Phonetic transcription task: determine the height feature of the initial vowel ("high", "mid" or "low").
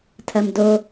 low